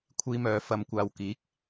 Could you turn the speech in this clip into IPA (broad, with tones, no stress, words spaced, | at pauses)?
kʷʰiː˥mœː˧ fɐ˧mkʷaː˧wkiː˨˥k̚